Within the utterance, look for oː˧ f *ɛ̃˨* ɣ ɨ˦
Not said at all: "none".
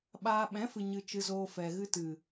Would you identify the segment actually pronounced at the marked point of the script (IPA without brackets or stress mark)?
ɛ˨